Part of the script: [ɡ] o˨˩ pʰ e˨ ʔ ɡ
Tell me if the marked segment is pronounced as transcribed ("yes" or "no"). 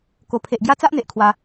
no